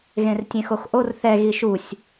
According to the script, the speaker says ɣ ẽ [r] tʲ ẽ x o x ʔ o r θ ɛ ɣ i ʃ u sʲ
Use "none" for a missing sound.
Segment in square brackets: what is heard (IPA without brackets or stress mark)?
r